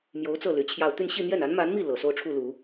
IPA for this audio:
m j o˧˥ ʊ̯ t͡s ɤ˥˩ l y˧˥ t͡ɕʰ j ɑ˥˧ ʊ̯ t̪ y˥˧ n ɕ i˥˧ n̪ j ɛ˥˩ n a˧˥ n m a˧˥ n m i˥˩ l ɤ˨˩ s o˥˧ ʊ̯ ʈ͡ʂʰ u˥˩ l u˨˩˦

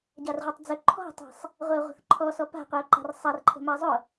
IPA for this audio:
ɟ a r ʁʷ a tˤ d͡z ɵ ǃʰ ɔ̤ tˤ a̤ sˤ | ʁʷ ɛ ʊ̯ ʁʷ ə̤ θ ǃʰ ɔ s ɔ p a̤ qʷ ɛ ʊ̯ ǃ a̤ r sˤ a r ǃʰ ə̤ m a zˤ ʊ

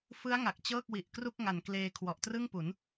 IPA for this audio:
f ɯ˦˥ a̯ ŋ a˨˩ k̚ t͡ɕ ɤː˥˩ k̚ w i˨˩ ʔ k r u˥˩ k̚ ŋ a˨˩ n k l eː˧ kʰ w ɔ˨˩ ʔ t r ɯ˥˩ ŋ p u˩˦ n

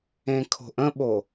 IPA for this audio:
ẽ kʰ o̤ ʔ ə̃ ɓ o

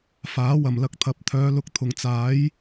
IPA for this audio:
f aː˨˥ w ɐ˨˩ m l ɐ˧ k̚ t̪ʰ ɐ˨˥ p̚ t̪ʰ œː˨˧ l ʊ˧ k̚ t̪ʰ ʊ˨˩ ŋ t͡s aː˨˥ j

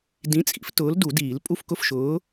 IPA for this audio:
d ĩ˨˥ t͡sʼ ḭ˨˥ f t ʊː˨˥ l d u˨˩˦ d iː˨˩˦ l pʼ u˥˨ f k ʊ˥˨ f ʃ ʊː˨˥

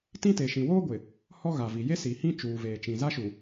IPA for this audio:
t ĩ˦ t e˨ ʃ ĩ˨ w oː˦ ɡʷ ɪ˨ | h ɔ˦ ɣ a˨ v i˨ j e˦ s i˨ h ĩ˦ t͡ʃ uː˨ v eː˨ t͡ʃ ĩ˨ z a˦ ʃ u˨

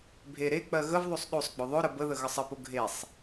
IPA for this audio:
bʱ e ɾ e k͡p ɜ ɣ ə v ðˤ o sˤ ɗ o sˤ ɡ͡b ʊ ðˤ ʊ ɾ ə b ə ð ə ɣ ə sˤ ə p ʊ ɡʱ e sˤ

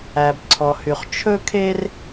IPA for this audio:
æ˩ b ǀʰ ɔ˩ h y˩ χ t͡ʃʰ ɵ˥ kʰ e˥ r

